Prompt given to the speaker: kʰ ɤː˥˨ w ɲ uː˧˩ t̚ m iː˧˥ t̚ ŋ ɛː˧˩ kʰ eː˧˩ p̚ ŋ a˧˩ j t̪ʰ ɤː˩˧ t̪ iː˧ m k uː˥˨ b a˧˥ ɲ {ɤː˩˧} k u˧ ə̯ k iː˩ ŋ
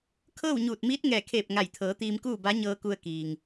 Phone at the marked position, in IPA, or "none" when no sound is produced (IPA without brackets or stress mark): ɤː˧